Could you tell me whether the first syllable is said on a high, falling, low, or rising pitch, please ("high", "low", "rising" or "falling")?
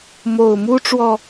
low